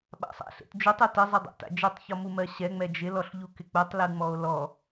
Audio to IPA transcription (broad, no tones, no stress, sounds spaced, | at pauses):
ɓ a̰ sˤ a̰ ɬ ḛ t d͡ʒ u tˤ u t ɪ zˤ ɪ dˤ a̰ t a̰ d͡ʒ ɨ tˤ ç ɔ m u m ɜ ɕ ɛ ŋ͡m ɛ d͡ʒ ɪ l ɔ ɬ ʎ u k ɪ k͡p u tˤ l ɯ ŋ͡m ɔ o̯ l ɔ